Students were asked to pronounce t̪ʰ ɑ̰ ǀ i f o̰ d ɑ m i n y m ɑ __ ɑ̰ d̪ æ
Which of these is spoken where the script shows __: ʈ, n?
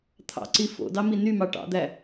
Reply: ʈ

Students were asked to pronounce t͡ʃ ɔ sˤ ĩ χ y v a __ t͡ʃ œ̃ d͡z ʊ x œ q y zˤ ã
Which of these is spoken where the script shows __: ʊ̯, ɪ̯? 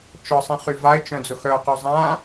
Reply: ɪ̯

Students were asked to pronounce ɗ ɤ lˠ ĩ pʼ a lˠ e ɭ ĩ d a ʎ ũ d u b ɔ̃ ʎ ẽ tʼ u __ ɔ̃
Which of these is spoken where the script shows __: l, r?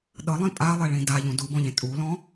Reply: l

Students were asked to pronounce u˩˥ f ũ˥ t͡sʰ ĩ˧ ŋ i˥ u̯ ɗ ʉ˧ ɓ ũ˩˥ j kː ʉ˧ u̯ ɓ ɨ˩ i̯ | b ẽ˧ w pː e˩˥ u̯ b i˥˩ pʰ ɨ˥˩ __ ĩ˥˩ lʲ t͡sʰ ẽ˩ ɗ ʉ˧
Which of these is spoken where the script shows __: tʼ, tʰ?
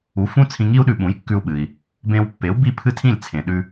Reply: tʰ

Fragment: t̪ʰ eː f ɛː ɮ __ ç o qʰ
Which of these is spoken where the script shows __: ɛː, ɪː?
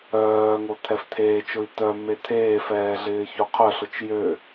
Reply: ɪː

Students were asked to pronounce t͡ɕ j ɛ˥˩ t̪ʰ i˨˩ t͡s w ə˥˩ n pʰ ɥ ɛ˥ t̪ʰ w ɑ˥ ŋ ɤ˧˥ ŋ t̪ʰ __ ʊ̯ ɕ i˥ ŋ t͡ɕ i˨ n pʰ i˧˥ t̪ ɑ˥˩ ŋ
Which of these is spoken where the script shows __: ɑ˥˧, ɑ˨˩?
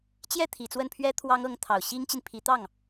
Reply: ɑ˨˩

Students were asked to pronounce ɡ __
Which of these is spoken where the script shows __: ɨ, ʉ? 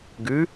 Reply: ʉ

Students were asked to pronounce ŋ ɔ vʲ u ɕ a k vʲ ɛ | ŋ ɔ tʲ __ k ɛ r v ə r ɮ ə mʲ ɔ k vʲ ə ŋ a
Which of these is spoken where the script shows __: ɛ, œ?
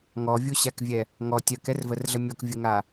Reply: œ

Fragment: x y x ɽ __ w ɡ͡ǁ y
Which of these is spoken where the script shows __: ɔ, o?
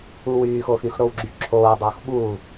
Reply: o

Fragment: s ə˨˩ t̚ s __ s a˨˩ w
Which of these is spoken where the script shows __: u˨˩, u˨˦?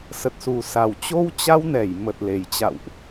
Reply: u˨˩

